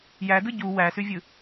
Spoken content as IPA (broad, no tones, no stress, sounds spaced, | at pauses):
j æ d ɯ ɟ u w æ s y vʲ ɯ